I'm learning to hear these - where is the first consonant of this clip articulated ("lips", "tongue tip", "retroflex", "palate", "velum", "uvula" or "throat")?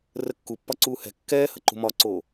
tongue tip